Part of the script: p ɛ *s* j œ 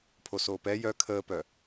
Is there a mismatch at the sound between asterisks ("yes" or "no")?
yes